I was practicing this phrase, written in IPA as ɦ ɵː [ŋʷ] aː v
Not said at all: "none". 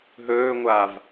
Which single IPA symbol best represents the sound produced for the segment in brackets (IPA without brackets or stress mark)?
ŋʷ